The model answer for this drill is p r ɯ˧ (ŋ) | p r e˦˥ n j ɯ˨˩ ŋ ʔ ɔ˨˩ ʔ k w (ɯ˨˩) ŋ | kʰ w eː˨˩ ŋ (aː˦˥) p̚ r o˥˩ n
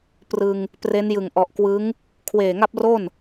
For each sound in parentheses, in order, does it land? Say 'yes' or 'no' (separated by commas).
yes, no, no